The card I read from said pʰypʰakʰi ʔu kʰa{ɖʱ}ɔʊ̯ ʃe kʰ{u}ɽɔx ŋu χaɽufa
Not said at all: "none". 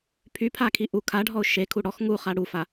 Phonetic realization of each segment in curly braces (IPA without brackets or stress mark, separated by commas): ɖʱ, u